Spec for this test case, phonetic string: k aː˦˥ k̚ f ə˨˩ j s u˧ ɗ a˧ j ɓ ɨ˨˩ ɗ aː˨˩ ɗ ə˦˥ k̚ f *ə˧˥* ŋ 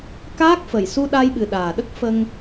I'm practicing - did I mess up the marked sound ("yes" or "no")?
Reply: yes